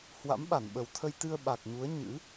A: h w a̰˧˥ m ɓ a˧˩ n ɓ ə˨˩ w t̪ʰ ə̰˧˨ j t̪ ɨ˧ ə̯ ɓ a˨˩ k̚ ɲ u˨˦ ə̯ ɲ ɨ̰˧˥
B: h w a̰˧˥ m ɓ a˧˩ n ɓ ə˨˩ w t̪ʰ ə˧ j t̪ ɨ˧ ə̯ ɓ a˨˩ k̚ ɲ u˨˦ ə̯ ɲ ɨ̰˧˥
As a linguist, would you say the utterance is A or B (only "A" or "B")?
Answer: B